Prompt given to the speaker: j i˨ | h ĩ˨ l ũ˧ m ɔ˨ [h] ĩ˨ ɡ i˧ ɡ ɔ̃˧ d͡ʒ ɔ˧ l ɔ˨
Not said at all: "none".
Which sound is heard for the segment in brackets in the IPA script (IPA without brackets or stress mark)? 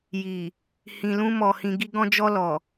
h